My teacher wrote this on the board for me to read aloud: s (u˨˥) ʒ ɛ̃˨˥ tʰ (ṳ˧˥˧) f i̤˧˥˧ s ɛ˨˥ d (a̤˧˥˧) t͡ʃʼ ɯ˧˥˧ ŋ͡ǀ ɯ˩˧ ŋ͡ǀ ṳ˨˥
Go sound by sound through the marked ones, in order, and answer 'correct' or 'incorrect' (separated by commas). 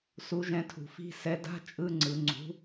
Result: correct, incorrect, correct